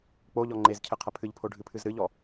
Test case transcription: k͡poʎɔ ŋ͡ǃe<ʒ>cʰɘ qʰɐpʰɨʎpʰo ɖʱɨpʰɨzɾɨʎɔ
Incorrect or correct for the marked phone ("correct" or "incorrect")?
incorrect